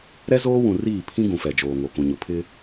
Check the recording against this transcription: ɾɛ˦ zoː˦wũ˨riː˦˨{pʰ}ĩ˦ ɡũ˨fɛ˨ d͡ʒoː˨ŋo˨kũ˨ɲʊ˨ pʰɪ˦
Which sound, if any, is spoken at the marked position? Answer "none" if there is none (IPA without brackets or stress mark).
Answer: pʰ